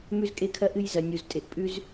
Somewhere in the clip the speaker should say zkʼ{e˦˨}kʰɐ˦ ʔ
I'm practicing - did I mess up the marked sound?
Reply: yes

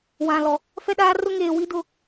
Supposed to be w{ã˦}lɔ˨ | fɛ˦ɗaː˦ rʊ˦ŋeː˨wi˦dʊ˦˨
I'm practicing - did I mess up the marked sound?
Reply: yes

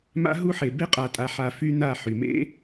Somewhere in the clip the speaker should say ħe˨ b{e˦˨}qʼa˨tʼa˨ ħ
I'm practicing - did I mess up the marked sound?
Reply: yes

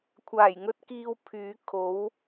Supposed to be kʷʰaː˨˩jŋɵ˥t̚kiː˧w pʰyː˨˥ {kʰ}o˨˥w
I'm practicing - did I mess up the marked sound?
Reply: no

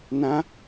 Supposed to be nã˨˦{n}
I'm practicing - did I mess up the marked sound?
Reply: yes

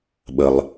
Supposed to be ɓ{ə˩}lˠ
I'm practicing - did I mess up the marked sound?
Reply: no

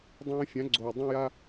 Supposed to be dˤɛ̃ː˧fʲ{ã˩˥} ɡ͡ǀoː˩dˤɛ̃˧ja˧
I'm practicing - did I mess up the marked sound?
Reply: no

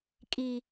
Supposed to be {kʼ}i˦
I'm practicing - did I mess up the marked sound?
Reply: no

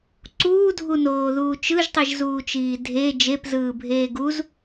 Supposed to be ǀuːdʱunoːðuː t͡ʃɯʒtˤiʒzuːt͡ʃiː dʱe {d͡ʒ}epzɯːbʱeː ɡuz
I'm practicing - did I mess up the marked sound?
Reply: no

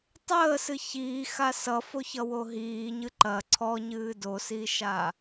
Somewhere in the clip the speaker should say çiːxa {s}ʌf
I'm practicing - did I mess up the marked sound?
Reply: no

